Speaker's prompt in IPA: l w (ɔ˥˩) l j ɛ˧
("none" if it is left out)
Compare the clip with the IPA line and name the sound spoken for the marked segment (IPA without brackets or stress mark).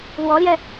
ɔ˧˥